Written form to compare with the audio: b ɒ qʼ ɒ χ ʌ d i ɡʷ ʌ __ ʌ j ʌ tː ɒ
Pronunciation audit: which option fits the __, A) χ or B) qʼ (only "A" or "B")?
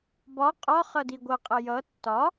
B